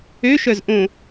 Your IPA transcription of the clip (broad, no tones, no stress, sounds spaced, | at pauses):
ø ʃ œ z ʔ õ